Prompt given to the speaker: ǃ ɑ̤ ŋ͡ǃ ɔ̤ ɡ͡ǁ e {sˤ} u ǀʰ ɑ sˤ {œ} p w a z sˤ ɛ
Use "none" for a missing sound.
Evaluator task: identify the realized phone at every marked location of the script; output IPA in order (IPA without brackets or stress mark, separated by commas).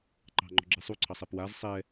sˤ, ɛ